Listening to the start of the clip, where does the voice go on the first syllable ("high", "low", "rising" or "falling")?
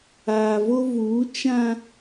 low